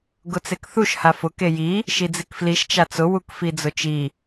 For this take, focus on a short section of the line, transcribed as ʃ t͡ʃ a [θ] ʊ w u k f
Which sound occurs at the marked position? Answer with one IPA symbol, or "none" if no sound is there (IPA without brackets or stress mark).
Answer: t͡s